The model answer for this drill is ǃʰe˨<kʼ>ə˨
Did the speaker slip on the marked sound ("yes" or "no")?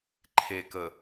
yes